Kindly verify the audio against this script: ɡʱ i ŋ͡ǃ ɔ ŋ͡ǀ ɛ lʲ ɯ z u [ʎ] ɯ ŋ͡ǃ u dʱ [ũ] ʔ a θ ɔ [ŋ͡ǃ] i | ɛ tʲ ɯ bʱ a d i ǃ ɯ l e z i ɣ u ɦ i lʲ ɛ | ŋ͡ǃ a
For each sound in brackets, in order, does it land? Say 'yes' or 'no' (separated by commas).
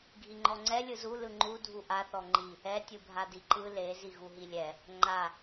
no, no, yes